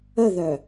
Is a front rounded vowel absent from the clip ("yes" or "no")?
no